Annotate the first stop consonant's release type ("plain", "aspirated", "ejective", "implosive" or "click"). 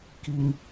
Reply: plain